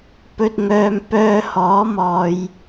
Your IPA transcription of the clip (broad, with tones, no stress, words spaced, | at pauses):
pɵ˧t̚ŋœː˧m pœː˧hɔː˨˥mɔː˨j